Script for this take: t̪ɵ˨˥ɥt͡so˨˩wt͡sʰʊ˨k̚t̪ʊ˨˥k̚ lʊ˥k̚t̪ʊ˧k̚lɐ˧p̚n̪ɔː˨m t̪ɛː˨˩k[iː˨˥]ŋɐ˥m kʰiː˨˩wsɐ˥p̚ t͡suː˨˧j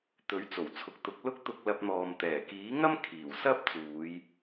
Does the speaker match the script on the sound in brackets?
yes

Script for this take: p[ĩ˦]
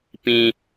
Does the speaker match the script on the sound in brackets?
yes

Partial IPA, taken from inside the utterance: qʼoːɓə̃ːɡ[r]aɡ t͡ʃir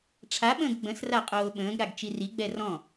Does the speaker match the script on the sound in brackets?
no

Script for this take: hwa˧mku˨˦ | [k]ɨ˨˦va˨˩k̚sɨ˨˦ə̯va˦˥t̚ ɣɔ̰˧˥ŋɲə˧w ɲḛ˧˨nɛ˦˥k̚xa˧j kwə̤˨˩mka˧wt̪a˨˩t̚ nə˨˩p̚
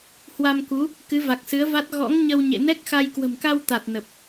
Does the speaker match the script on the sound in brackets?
yes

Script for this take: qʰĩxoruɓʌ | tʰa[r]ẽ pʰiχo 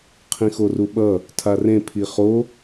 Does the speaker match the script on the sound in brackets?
yes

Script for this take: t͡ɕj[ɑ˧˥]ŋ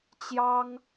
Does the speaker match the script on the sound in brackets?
no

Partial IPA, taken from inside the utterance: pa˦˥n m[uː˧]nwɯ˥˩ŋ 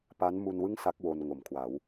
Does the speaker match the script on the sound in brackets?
no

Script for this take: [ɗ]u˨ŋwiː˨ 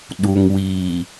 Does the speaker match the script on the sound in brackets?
yes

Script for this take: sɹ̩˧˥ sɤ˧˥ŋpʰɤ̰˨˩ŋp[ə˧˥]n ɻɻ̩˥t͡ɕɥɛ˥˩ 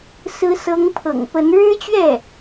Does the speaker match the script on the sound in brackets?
yes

